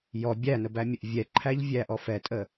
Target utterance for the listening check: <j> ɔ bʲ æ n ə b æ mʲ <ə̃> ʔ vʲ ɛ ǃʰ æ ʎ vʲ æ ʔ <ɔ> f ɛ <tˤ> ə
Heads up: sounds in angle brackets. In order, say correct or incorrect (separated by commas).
correct, incorrect, correct, incorrect